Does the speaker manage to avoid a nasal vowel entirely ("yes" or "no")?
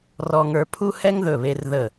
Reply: yes